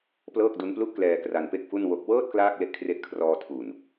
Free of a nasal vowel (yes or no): yes